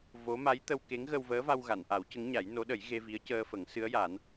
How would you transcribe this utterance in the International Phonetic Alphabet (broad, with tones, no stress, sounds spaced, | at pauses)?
v o˧˥ m a˧˥ j t̪ ə˧ w k e˧˥ ŋ ɣ ə˧ w v əː˧˥ v a˧ w ɣ a˨˩˨ n ʔ a˨˩˦ w c ə˧˥ ŋ ɲ a˨˩˦ j n o˧˥ ɗ ə˨˩˦ j ɣ e˧ v i˧˥ ə̯ c əː˧ f ə˨˩˦ ŋ s ɨ˧˥ ə̯ j a˨˩˦ n